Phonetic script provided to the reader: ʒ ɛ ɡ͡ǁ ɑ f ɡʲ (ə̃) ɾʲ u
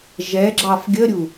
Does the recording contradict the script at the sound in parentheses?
yes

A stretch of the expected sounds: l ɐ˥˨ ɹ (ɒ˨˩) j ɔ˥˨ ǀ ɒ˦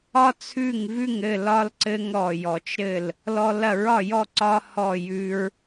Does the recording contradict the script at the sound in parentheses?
yes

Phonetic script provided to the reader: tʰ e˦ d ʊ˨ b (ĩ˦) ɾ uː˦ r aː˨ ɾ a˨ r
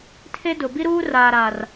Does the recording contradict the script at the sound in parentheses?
yes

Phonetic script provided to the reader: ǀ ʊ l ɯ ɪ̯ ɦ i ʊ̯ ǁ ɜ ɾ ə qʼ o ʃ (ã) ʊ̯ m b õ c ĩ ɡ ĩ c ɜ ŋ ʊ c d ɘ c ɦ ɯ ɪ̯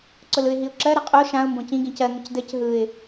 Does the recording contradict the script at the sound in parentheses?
no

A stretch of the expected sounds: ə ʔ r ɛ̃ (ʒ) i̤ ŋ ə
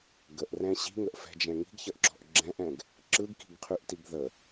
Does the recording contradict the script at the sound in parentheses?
yes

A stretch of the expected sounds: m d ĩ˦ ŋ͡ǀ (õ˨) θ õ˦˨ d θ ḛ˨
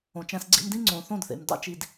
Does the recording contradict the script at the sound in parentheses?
no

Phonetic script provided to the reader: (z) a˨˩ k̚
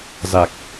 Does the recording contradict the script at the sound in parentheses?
no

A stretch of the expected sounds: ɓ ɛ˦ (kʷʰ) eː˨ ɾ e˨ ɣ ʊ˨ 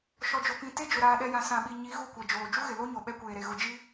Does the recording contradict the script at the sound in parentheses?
yes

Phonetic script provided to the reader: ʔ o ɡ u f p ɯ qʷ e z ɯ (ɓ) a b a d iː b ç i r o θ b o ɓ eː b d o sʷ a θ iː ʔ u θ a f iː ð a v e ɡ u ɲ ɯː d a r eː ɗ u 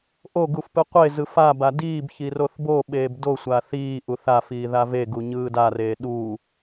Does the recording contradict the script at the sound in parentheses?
yes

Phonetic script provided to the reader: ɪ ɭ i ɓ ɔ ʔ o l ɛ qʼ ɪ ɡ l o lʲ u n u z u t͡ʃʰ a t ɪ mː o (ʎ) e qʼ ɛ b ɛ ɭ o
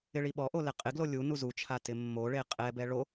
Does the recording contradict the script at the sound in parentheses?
yes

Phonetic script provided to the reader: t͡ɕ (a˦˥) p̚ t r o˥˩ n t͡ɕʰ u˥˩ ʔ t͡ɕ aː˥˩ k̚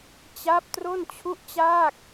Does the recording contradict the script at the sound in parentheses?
no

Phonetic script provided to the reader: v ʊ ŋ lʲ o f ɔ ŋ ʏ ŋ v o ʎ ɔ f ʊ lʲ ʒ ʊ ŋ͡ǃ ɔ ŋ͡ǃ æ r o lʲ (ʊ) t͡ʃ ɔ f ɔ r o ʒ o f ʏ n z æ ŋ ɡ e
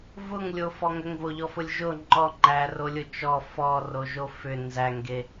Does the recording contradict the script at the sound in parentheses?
no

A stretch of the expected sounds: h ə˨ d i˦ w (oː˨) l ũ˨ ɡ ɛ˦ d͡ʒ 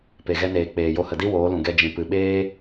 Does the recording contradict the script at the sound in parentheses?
yes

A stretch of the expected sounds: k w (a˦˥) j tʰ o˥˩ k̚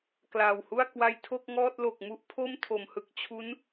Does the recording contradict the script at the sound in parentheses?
no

